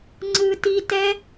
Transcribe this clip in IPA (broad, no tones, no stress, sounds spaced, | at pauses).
ŋ͡ǀ ɯ t i t ɛ